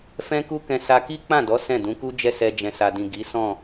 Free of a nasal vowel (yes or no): no